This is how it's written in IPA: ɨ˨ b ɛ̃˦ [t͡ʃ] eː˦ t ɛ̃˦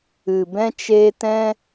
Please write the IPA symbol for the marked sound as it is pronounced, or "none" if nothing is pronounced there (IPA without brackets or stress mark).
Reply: t͡ʃ